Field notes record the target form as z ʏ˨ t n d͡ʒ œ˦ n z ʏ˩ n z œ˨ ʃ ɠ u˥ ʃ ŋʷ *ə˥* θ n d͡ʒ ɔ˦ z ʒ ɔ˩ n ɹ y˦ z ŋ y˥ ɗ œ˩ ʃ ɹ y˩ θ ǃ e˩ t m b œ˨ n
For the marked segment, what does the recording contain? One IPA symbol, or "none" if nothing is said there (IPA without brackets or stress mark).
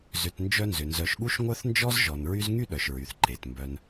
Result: œ˥